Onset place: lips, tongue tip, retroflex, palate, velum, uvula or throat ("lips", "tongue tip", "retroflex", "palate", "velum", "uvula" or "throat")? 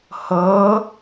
throat